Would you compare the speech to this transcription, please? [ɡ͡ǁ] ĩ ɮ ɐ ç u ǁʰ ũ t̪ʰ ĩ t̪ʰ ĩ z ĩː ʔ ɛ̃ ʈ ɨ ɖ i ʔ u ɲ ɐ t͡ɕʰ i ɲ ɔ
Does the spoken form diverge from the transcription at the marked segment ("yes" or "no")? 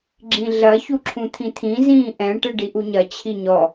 no